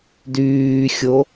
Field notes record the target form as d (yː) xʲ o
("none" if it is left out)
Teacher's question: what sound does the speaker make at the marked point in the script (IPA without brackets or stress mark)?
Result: yː